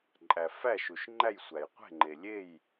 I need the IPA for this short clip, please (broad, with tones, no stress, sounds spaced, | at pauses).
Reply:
ǃʼ æ˨ f æ˥˨ ʃ u˨ ʃ ŋ͡ǃ æ˥˨ j sʷ æ˨ j qʷ e̤˥˨ ŋ͡ǃ e˨ lʲ e˥˨ j